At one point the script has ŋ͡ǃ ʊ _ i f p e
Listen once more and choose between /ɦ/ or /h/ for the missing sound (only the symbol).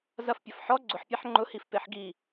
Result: h